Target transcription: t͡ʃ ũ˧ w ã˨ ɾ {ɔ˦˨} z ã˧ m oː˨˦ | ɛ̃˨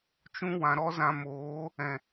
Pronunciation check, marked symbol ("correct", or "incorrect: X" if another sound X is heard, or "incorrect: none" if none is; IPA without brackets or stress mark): incorrect: ɔ˦